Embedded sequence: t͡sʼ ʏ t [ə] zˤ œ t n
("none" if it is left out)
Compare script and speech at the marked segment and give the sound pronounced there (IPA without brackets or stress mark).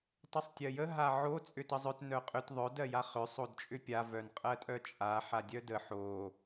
ə